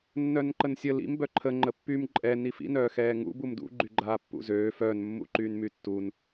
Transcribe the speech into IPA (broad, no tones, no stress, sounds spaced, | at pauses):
nː œ n ǃ ə n sʲ ə l ḭ m b œ ǃʰ ə ŋ͡ǃ ə pː y m ǃʼ ɛ n i f ḭ n œː x ɛː ŋ ṵ b u m d ṵ ɡ͡ǃ y ɡ͡ǃ aː pː ṵ z øː f œː n mː ṵ ǃ yː n m y tː u n